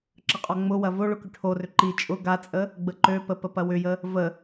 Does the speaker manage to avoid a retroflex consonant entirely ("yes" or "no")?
no